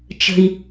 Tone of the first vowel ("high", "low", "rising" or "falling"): high